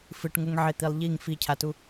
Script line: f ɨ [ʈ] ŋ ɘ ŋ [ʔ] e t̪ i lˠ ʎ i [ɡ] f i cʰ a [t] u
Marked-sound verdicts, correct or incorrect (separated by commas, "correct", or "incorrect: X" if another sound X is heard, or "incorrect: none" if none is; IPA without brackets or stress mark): correct, incorrect: ʕ, incorrect: ŋ, correct